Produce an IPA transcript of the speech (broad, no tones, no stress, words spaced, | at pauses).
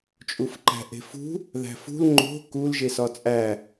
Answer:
t͡ʃʼufǃæ̤ʔe̤fṳ | ðæ̤fṳl ŋ͡ǃo̤ kul ʒesɒt͡sʼæ